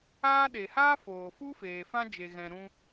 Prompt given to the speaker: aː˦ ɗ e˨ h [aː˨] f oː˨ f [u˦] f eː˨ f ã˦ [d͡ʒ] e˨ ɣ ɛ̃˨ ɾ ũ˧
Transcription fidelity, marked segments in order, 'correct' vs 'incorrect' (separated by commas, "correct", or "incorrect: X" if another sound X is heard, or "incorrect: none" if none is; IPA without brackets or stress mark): incorrect: aː˦, correct, correct